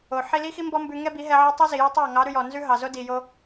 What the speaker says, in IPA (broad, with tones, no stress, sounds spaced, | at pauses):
o˨ ħ i˧ l i˦ x i˦ m b ɔ˦ m b ʉ˧ ŋ ɛ˦ b i˨˦ ɦ ɛ˧ ʕ ɛ˦ tˤ i˦ z i˨ j i˧ tˤ ɑ˦˨ ŋ ɑ˨˦ ɾ ʉ˧ j ɔ˨ n z ʉ˦ ɦ ɑ˨ z o˦ d i˨ j o˧